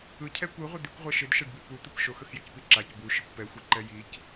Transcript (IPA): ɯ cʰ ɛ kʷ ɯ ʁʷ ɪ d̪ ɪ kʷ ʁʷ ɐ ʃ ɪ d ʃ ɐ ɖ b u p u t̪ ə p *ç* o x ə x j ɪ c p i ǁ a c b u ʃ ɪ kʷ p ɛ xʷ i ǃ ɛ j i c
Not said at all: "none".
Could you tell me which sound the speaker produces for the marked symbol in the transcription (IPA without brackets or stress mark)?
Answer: ʃ